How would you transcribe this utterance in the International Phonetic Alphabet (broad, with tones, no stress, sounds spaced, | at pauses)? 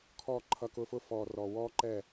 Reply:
kʰ ɔ˦˨ ǃʰ ʌ˧ k ʊː˧ f ʊ˦ f ɔː˨ r ɔː˨ w ɔː˦ ǃ ɛː˦˨